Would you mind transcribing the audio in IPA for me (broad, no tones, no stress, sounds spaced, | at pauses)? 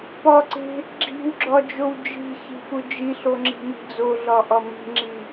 p ɒ ǀ e̤ | ɡ͡ǁ i̤ w ɡ͡ǁ ɒ d͡ʒ o w d͡ʒ i̤ ç i̤ p u d͡ʒ i ɬ o ŋ͡ǁ i̤ m i̤ d͡z o ɮ ɒ ʔ ɒ m i̤ ŋ͡ǁ i